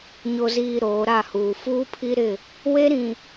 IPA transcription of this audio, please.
ɲ o˨ z iː˨ ɾ oː˨˦ ɾ a˦˨ h uː˨ f uː˦ pʰ i˦ ɾ ɪ˦˨ | w e˦ ɾ ĩ˨

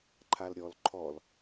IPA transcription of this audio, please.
ǃʰ a l ɾʲ ɔ l ǃʰ ɔ l

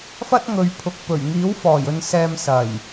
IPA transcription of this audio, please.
f ɐ˥ t̚ ŋ ɵ˨˧ ɥ pʰ ʊ˨ k̚ p ɵ˨˩ ɥ ŋ iː˨˥ w f ɔː˨˩ j ɵ˨ n s ɛː˨ m s ɐ˨˩ j

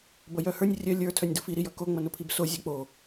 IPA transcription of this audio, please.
b ʌ j œ h ə˞ nʲ rʲ œ lʲ ə˞ tʰ œ nʲ d ʊ f i ɾ i j ʌ k o ŋ͡m ʌ n ʊ pʰ i b s o zʲ ʌ k͡p o

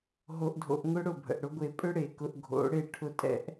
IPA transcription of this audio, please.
ɦ o˧ ʔ dʱ o̰˧ ʔ ŋ ʊ˦ ɽ ʊ˦˨ bʱ ə̰˨ ʔ ɽ ʊ˦ ɡʷ e˧ pʼ ʏ˦ ɽ e˨ k ʊ˧ ʔ ɡʱ o̰˨˦ ɽ e˦˨ ʈʰ ʊ˦˨ tʼ ɛ̰˦ ʔ

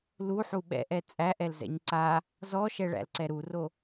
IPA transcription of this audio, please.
l u ħ u ɓ ɛ̰ ʔ ɛ t͡sʼ æ ʔ ɛ l z ɛ̰ ɲ ǀ a | z ɔ ʃ ɛ ɭ æ̰ l ǀ ɛ ɾ u r o

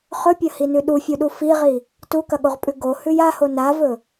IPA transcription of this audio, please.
χ ɵ pʲ ɐ h i n ʉ ɗ u fʲ u ɗ u f i ʁ i | t u k ɐ ɠ o ʁ pʼ ʉ ɡ o h ʉ j a h o n a v ɵ

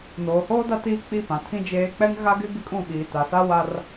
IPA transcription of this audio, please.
n oː˨ h oː˦ d a˦ t iː˦ k͡p i˦˨ p ã˨ tʰ ĩ˦ d͡ʒ eː˦ k͡p ɛ˦ ŋ ɣ a˦ ɡ ɪ˦ ɡ ɪ˦ kʼ ũ˦˨ ɓ iː˨ t a˨ s a˦ w a˦ r

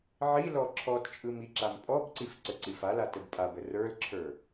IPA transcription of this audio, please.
ʕ i l ɔ ǁʰ ɔ t t͡ʃʼ ɯ m i ǁ a m pʼ ɔ b ǀ i f ǀ ə ǀ i f a l a t ə b pʼ a b ə r ə˞ l ǁʰ ə˞

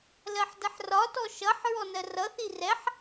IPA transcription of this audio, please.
l ɜ ħ d ə ħ r ɒ t ɔ ʃ ʌ ħ ɹ ɔ n ɜ r ʌ θ i r ɛ ħ

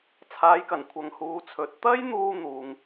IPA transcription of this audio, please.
t͡sʰ aː˨˧ j k ɐ˨˩ n kʷʰ ɐ˨ ŋ h uː˨˧ t͡sʰ ɵ˨ t̚ t̪ ɐ˥ j n̪ uː˧ n̪ uː˨ ŋ

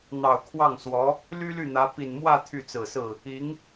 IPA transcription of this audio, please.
n̪ ɑ˨˩ ʊ̯ kʰ w ɑ˥˩ ŋ s w ɔ˧˥ | l y˥ l y˥˩ n̪ ä˧˥ p i˨˩ n m w ä˥˧ t̪ʰ y˥˩ t͡s ɹ̩˨˩ s ɹ̩˥˩ | i˧˥ ŋ

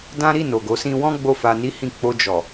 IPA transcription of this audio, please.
d ã˦ ɾ i˦˨ n o˨ ɡ o˨˦ s ĩ˧ w ɔ̃˦ ɡ͡b o˦˨ f a˧ n i˦ h ĩ˦˨ k͡p o˧ d͡ʒ ɔ˨

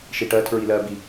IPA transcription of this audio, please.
ʃ i ʈ ɜ tʰ ɹ i l ɜ b i

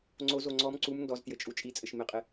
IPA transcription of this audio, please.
ŋ͡ǀ o z o ŋ͡ǀ ɔ m ǀ u m n d ɔ z t j ɘ t͡ʃʼ u t͡ʃʼ i t͡sʼ ɘ ʃ m ɪ qʼ ɪ

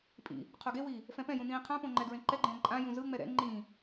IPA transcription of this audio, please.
pʼ ḭ | qʰ o ɡ e w iː | f ɛ̃ p ɛ̃ j ũ n ĩː qʰ ã p õ ŋ͡ǃ ɛ ɡ ɹ ẽ ǃ ɛ ɡ͡ǃ ɛ̃ː ǃʼ ã j ũ z ɯ ŋ͡m ɛ ɾ ɛ̰ ŋ͡ǃ ĩː

